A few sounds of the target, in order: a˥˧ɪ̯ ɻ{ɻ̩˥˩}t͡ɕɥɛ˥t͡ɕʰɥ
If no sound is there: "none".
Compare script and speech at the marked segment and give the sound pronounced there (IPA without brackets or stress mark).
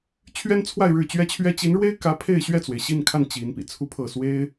ɻ̩˥˩